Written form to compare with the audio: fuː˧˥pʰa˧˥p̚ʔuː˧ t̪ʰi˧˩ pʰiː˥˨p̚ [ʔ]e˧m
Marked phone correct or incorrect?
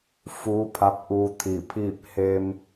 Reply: incorrect